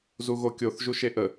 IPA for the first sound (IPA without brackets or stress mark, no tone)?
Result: z